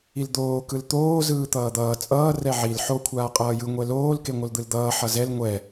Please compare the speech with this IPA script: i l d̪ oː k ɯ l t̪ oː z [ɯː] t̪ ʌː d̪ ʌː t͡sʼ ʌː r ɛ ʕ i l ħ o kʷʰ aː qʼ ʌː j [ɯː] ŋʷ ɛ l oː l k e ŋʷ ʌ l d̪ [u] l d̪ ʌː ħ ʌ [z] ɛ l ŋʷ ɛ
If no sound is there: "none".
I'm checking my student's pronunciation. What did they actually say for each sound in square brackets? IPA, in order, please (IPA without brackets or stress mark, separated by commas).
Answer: ɯː, ɯ, ɯ, z